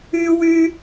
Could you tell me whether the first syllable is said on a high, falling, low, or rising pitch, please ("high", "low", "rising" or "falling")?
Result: high